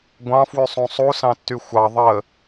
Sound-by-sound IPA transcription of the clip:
ɡʷ ɑ̃ f w y sˤ ũ sˤ u s ɑ̃ tː y xʷ ɑ ðˤ ə

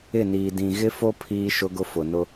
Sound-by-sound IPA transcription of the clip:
ɪ˦˨ n iː˨ d ĩ˨ ɣ ɪ˦ f o˦ pʰ iː˦ ʃ ʊ˦ ɡ ʊ˦ f ʊ˨ n ʊ˦

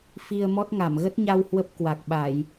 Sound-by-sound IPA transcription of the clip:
f i˧ ə̯ m ɔ˦˥ t̚ ŋ a˧˩ m ɣ ə˦˥ t̚ ɲ a˧ w h w ə˦˥ p̚ k w a˨˩ k̚ ɓ a˧˩˨ j

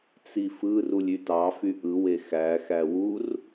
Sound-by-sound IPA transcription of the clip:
t͡s i f ɯ r u lʲ y t ɑ f y ʔ ɯ w e x æ x æ w u r

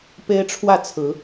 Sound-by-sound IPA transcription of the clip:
p e˦ ɪ̯ ʈ͡ʂʰ w ä˥˨ t͡sʰ ɹ̩˨˦

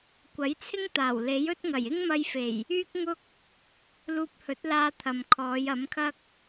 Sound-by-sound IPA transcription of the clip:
kʷ ɐ˨˥ j t͡sʰ ɪ˥ ŋ t̪ aː˨˩ w l e˨˥ j ɵ˥ t̚ ŋ ɐ˨˩ j ɪ˥ ŋ m ɐ˧ j f e˨˩ j | yː˥ k̚ ŋ ʊ˥ k̚ | l uː˧ p̚ h ɵ˨˥ t̚ l aː˧ t̪ʰ ɐ˨ m kʰ ɔː˨˧ j ɐ˨˥ m kʰ ɐ˥ k̚

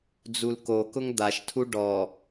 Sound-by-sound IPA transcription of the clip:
d͡z u l k o k ʊ ŋ d̪ a ʃ tʰ u ɖ ɔ

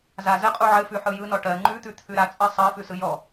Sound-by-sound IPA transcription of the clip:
z a z ɘ qʼ u ʕ ɘ f ʉ ħ ɯ j ɯ n ɔ ʈ ɜ ŋ͡ǃ ʉ t̪ ʉ t̪ʰ ʉ ɾ a t͡sʼ ɜ sˤ ɜ f ʉ s ɯ j ɔ

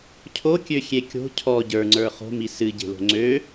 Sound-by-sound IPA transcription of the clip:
cʰ o kʲ ø xʲ e kʲ o̤ cʰ ɔ ɟ ə˞ ŋ͡ǀ ə˞ χ o̤ m i s ɨ ɟ e̤ l o̤ ŋ͡ǀ ø

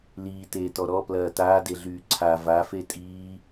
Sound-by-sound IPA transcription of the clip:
l iː t eː t ɔ ɾ ɔ p l ɐː t aː d e ɮ yː ǀʰ a v a f e tʼ iː

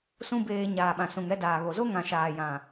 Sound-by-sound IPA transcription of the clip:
s ũ˦ b eː˧ ɲ aː˨ ɓ ã˨ s ũ˨ ŋ ɛ˧ d aː˨ ɣ o˨ z o˦ ŋ ã˨ ʃ aː˨ j ã˨

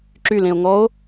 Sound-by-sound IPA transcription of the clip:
ǁ y l ẽ o̯ ŋ ɔ o̯

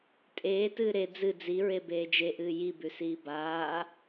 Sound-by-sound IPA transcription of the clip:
tʼ eː t ɨː ɾ e d͡z ɨ d͡z i ɹ e b eː d͡ʒ e ʔ ɨː j i b ʉ s iː b aː

